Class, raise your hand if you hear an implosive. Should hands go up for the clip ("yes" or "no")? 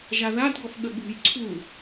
yes